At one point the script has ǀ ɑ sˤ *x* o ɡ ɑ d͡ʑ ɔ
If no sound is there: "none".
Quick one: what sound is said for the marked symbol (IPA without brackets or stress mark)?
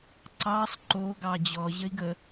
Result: ǃ